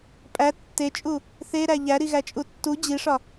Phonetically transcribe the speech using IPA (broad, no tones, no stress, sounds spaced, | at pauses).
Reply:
pʼ æ tː e t͡ʃʼ u | θ e ɾ æ ʎ æ ɾ i ɣ æ t͡ʃʼ u tː u d͡ʑ i ʂ ɒ